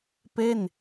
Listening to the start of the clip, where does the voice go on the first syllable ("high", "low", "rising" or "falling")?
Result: falling